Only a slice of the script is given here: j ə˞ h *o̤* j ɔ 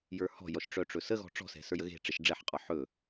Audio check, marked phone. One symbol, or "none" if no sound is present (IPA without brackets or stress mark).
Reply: ɔ̤